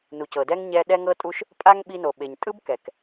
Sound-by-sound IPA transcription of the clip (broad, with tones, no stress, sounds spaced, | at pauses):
n u˩ c ɤ˩ d ɛ˥ ŋ ɲ ɛ˧ ɗ ɛ˧ ŋ ɤ˧ tʼ u˧ ʃ | pʼ a˥ ŋ ɓ i˧ n o˩ ɓ e˩ ɲ tʼ ɯ˥ b k ɛ˩ k